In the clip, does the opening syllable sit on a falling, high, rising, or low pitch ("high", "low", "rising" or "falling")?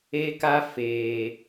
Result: high